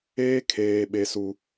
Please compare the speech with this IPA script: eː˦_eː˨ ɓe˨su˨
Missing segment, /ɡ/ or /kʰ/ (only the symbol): kʰ